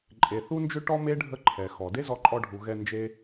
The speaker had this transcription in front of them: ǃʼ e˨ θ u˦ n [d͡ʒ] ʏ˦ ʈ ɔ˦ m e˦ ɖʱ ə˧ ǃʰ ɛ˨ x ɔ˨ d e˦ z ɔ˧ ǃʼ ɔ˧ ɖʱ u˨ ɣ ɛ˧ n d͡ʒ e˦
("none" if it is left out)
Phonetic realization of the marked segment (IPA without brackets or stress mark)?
d͡ʒ